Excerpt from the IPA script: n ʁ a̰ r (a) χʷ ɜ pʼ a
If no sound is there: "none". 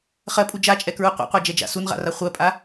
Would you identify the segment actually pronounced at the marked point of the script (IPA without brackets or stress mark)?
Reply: a